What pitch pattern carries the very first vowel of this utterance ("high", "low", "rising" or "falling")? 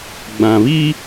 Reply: low